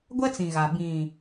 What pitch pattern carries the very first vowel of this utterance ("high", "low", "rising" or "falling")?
high